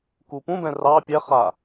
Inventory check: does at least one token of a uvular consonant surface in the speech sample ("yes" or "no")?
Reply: yes